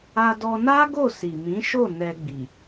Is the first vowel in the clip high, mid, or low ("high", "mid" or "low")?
low